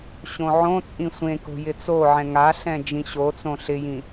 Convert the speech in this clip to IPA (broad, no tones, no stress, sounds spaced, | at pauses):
ɕ õ ʕ õ t͡sʼ ĩ sʷ ẽ k o̤ j ɪ t͡s o ʕ ɛ̃ ŋ a ɬ ɛ̃ d͡ʒ ĩ ɕ o t͡s õ ɬ ɪ j ĩ